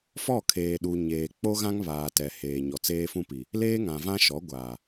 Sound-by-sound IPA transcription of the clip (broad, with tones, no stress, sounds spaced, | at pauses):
f ɔ˦˨ kʰ eː˨ ɗ u˨ ɲ eː˨ k͡p o˦ ɣ ã˦ ŋ β aː˨ t ɛ˨ h eː˨ ɲ ɔ˨ t͡s eː˦ f ũ˦ p i˨ | l eː˦ ŋ ã˨ v ã˦ ʃ ɔ˨˦ ɡʷ aː˨